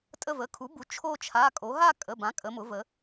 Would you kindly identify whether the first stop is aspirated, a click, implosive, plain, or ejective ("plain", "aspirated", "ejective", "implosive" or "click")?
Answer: ejective